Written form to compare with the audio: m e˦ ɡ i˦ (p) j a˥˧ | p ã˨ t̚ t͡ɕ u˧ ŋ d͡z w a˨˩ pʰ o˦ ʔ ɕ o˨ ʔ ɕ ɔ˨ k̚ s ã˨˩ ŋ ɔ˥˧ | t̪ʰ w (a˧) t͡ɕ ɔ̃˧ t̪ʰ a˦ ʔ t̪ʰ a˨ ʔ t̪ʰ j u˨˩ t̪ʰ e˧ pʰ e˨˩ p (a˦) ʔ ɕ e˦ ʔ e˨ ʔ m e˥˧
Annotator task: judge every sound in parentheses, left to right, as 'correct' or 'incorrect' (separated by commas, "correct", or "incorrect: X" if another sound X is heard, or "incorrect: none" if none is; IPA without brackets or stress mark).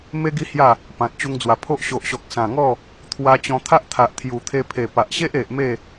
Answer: incorrect: h, correct, incorrect: a˨